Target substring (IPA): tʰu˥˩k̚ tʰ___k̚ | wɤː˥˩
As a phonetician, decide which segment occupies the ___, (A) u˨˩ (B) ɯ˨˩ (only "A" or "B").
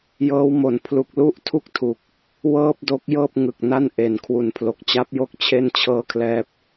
A